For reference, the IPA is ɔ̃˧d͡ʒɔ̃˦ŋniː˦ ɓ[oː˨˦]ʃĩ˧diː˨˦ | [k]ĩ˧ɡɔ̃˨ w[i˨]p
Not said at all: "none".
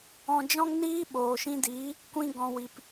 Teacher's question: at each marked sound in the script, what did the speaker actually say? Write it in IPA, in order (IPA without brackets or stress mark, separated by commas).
oː˨, kʷ, i˨